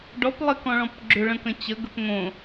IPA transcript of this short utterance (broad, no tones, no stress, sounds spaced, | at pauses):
ɖ ɔ p lˠ ɪ k ɔ̃ ɭ ɔ̃ p ɡ͡ǁ ʏ ɭ ə̃ k ə̃ t͡ɕ ə ɡ ə p ŋ õ